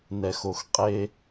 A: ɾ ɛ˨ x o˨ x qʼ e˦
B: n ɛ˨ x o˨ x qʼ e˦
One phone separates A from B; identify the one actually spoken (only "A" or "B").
B